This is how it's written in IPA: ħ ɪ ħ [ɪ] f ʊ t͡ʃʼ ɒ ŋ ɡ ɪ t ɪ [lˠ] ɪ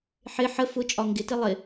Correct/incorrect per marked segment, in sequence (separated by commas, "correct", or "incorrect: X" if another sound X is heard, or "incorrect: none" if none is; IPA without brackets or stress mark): incorrect: ə, correct